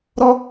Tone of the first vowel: high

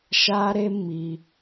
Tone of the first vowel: high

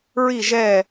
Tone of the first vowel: falling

